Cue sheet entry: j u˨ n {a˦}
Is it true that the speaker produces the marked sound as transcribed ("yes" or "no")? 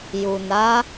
no